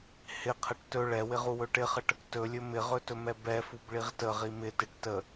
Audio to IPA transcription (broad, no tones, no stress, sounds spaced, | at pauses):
h ɪ qʰ ə ʈ t ɵ ɭ ɛ w ɪ ʁ u w ɵ ʈ ɪ χ ə ʈ | t ɵ lʲ ɵ m ɪ ʁ ɵ t ɵ m ɛ b ɛ f u b ɭ i ʁ t ə ʁ i m ɪ t ɪ ʈ t ə